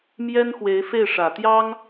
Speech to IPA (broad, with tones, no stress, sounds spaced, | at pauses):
m j ɛ˥ n x w e˧˥ ɪ̯ f e˥˩ ɪ̯ ʂ ä˨˩ t̪ j ɑ˥ ŋ